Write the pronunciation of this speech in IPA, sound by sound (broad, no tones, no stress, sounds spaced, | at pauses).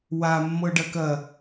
w a mː ɤ ɖ ɐ k ɐ